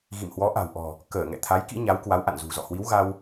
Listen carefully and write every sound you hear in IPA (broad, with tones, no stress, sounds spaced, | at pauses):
ɣ ḭ˧˨ m h w ɔ˨˦ ʔ a̤˨˩ w ʔ ɔ̤˨˩ | k əː˧˩ ŋ ɛ̰˧˨ t̪ʰ a˨˦ j k ḭ˧˥ ɲ a˨˦ w k w a˨˦ w ʔ a̰˧˨ n z ṳ˨˩ z ɔ̰˧˨ h w i˨˦ w ɣ a˧ w